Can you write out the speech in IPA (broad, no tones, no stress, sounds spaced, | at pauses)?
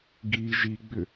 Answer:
ɡ i ʒ i ɡ͡b ʏ